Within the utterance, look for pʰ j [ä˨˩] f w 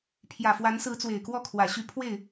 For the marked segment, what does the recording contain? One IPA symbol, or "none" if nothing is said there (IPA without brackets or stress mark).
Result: ä˨˩